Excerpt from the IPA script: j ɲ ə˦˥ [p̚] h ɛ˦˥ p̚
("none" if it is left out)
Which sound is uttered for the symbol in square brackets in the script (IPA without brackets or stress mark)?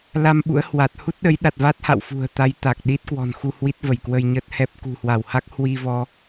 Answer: t̚